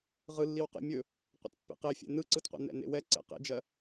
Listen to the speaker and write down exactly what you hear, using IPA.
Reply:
ʁ ɯ lː i w q ḛ mʲ ɵ | qʷ ɛ̰ t pː ḛ q e fʲ ɛ̰ n ɯ ǀ ɯ t qʷ ɛ̰ n ɛ̰ n ḛ w ɛ ǀ ɛ̰ q ḛ d͡ʒ ɜ

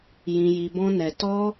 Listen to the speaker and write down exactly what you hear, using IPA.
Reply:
j ĩ˧ j i˧ b ɔ̃˦ n ɛ˧ t ɔ˦

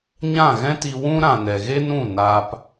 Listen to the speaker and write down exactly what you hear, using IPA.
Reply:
ɲ ã˦˨ ɣ ɛ̃˦ t i˧ w ũ˦ ɾ ã˨ n ɛ˨ ɣ e˦ n ũ˦˨ n aː˧ p

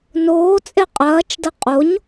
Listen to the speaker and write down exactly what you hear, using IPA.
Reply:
n oː t͡sʼ e qʼ ɐː t͡ʃ d ɐ qʼ o ɲ

